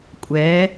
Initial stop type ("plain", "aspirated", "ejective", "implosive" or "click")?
ejective